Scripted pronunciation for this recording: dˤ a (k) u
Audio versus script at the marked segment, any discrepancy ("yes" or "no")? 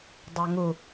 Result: yes